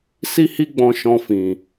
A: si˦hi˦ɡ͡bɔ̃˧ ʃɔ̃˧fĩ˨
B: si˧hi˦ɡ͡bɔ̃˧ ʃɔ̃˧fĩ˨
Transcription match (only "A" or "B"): A